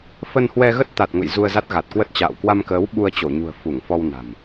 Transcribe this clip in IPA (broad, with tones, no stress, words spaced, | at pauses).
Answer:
fə˧nhwɛ˧ɣə˦˥t̚t̪a˨˩t̚ ŋə̰˧˨j zu˧ə̯za˦˥t̚ɣa˨˩t̚kwə˦˥t̚ t͡ɕa̰ː˧˨wkwa˧mkəː˨˦w ɓu˧ə̯t͡ɕo˧˩ɲṳ˨˩ə̯ fu˧˩ŋfɔ˧wna̤˨˩m